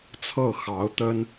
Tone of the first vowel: falling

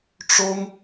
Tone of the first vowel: high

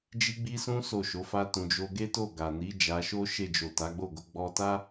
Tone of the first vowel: high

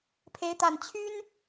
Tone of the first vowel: rising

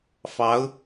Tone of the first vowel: rising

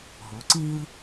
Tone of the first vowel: rising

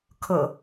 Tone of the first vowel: low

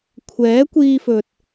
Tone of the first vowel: rising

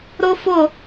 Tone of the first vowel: high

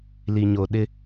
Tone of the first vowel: low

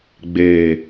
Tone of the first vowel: low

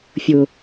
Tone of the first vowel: low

